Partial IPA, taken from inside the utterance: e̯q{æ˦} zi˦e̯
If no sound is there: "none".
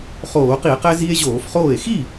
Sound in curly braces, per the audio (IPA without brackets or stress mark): æ˦